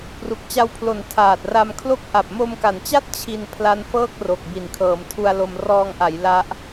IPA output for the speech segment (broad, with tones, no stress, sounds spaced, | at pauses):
p r u˨˩ k̚ t͡ɕ a˧ w pʰ l o˩˦ n tʰ aː˨˩ t̚ r a˧ m kʰ l o˥˩ k̚ ʔ a˨˩ p̚ m o˧ m k a˩˦ n t͡ɕ a˥˩ t̚ t͡ɕʰ i˧ n pʰ l a˦˥ n f ɤː˥˩ k̚ r o˨˩ k̚ b i˨˩ n kʰ ɤː˩˦ m tʰ u˧ a̯ l o˧ m r ɔː˧ ŋ ʔ a˩˦ j l a˦˥ ʔ